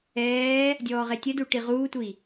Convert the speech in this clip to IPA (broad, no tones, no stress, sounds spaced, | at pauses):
ɛː | dʲ ɔː ʁ e tʲ ə d u ʈ i ʁ uː tʷ i